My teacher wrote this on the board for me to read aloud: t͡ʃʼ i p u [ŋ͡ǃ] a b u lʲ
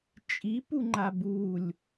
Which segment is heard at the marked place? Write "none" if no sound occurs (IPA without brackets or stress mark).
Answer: ŋ͡ǃ